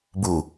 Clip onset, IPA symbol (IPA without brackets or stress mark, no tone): b